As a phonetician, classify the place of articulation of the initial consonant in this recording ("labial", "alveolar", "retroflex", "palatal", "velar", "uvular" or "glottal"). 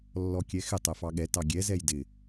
alveolar